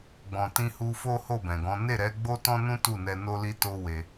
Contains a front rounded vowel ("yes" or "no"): no